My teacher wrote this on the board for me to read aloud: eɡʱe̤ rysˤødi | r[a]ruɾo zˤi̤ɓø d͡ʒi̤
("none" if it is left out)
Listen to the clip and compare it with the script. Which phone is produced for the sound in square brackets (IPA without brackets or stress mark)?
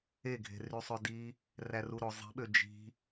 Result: æ